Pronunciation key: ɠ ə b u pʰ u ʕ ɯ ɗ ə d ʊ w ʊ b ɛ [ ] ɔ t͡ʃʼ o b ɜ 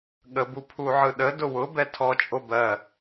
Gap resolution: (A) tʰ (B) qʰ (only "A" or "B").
A